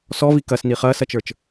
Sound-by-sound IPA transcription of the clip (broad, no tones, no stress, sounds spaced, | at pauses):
s ɔ v i k ɐ s n i χ ɐː s ɐ t͡ʃ ə˞ t͡ʃ